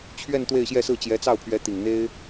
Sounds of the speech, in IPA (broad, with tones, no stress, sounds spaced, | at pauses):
t͡ɕʰ ɥ ɛ˥˧ n t̪ w e˥˧ ɪ̯ ɕ j ɛ˥˧ s ɹ̩˥˩ t͡ɕ j ɛ˧˥ t͡s ɑ˥˩ ʊ̯ pʰ ɥ ɛ˧˥ t̪ i˨˩ ŋ n̪ e˥ ɪ̯